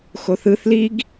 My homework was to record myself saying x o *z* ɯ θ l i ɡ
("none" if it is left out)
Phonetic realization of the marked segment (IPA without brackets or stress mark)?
θ